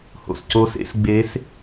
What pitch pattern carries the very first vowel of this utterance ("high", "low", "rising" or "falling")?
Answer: low